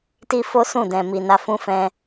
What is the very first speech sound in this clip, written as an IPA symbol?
t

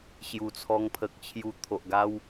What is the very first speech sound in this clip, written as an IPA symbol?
ɕ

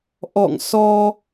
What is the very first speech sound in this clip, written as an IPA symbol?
ʔ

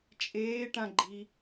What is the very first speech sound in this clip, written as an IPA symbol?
t͡ʃʼ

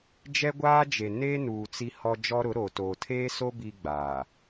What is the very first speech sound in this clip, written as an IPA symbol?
d͡ʒ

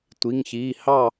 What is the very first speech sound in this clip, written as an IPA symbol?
tʷ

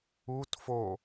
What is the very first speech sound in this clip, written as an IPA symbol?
u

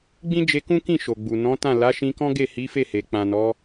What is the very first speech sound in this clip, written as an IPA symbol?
ɡ͡b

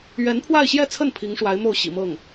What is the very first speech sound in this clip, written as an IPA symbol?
ɥ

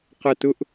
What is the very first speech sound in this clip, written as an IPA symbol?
q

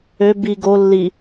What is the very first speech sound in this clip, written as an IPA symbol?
ø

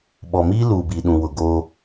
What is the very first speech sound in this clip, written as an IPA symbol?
ɓ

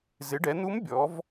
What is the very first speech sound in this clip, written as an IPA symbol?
z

